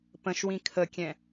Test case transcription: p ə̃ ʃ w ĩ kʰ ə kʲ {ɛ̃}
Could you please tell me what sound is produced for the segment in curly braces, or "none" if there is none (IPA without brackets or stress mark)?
ɛ̃